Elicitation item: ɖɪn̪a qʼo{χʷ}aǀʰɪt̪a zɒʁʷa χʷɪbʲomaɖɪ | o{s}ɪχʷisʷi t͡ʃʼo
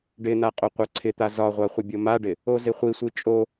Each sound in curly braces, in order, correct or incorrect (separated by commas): incorrect, incorrect